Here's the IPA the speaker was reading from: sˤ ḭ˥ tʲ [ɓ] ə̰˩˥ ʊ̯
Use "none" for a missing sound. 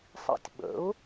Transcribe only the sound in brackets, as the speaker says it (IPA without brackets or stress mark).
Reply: ɓ